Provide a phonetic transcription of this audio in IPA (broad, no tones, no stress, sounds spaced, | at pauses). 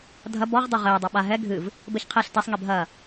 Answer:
dʱ ɐ b ɔ ʁ dˤ e ʁ ɘː dˤ o ɓ a ɦ ɛ ɡʱ ɨ v | b ɘ ç qʰ e ɬ t ɛ sˤ ŋ e bʱ ɐ